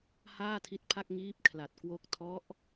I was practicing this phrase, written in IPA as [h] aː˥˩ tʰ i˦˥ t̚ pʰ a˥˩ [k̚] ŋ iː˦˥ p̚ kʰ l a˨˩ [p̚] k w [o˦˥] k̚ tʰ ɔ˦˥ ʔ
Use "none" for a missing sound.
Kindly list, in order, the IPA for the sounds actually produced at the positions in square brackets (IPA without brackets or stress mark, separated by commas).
h, k̚, t̚, o˦˥